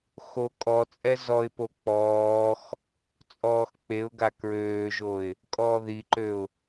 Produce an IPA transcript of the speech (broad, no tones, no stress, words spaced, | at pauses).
xo kʼɔt͡sʼɛ zɔɪ̯po k͡pɔːx | t͡sʼɔːxk͡peʊ̯ɡa kɹøːʒoɪ̯ | kʼɔːðiǃøʊ̯